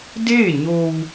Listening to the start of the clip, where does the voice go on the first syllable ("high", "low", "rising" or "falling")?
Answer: falling